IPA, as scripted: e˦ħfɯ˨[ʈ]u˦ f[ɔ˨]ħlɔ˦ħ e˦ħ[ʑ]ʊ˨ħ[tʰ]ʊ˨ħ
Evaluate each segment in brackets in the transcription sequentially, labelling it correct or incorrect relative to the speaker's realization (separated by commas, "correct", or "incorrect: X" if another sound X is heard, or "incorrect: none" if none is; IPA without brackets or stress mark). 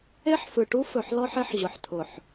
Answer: correct, incorrect: ɵ˨, correct, correct